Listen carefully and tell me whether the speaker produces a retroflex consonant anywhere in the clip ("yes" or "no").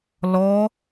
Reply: no